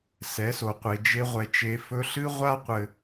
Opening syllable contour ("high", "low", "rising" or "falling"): rising